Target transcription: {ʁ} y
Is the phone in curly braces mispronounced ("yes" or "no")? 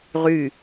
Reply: no